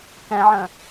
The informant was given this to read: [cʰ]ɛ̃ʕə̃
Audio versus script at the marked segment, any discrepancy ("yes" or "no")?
yes